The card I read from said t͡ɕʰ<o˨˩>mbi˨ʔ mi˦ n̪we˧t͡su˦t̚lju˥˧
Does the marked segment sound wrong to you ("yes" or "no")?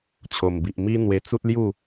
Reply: no